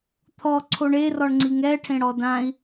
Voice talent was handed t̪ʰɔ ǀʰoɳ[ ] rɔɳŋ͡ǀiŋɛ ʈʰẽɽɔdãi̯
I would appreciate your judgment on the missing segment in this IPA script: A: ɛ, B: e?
B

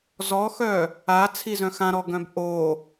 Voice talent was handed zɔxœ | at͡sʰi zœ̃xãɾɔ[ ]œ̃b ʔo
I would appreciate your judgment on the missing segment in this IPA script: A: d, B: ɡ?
B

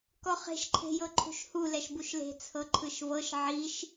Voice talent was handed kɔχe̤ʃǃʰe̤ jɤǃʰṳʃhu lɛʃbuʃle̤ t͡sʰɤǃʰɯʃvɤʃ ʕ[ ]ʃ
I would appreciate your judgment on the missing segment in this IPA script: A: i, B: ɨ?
A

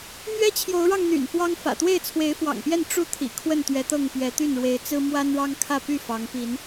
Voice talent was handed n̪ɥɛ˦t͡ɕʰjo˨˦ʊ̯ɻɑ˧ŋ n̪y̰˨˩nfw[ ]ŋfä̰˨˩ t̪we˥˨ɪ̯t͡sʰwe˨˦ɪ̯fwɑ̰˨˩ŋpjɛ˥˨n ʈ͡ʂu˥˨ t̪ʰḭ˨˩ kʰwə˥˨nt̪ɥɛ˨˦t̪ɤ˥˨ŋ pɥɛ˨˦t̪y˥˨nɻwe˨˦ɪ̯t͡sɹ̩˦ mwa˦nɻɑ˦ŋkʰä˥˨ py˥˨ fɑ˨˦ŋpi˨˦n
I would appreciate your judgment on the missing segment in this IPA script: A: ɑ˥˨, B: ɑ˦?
B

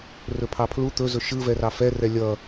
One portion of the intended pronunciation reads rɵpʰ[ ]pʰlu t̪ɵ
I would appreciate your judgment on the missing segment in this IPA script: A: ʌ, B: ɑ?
B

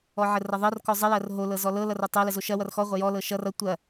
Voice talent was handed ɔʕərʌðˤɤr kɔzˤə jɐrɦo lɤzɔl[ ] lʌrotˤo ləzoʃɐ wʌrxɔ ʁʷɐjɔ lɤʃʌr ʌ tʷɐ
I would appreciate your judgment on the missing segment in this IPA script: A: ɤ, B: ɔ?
A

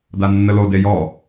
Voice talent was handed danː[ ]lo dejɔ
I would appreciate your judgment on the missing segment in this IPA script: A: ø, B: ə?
B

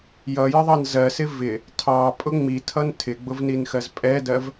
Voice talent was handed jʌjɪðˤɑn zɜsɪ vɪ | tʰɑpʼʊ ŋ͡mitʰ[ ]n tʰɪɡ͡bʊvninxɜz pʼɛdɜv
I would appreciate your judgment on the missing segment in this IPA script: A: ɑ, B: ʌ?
B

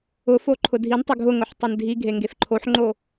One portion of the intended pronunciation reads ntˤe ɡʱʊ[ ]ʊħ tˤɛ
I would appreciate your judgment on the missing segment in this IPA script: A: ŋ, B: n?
A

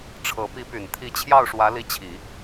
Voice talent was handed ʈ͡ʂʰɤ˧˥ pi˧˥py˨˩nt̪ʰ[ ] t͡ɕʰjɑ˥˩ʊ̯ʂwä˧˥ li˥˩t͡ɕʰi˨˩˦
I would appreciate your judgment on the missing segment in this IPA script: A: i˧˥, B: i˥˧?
A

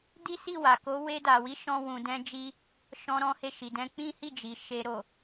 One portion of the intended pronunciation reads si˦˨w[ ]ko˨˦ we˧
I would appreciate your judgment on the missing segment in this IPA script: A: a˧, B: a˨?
B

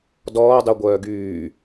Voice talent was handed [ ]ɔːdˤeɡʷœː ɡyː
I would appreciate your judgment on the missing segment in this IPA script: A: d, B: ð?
A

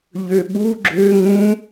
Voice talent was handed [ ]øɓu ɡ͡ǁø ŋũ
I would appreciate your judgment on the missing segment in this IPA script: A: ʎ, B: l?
A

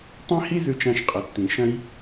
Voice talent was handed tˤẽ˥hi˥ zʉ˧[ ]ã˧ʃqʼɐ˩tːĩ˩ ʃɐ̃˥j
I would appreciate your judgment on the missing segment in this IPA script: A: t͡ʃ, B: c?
A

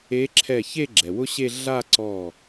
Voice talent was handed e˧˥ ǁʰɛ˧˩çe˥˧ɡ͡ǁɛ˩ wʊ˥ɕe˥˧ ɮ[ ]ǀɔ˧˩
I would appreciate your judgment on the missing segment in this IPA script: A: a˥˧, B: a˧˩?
A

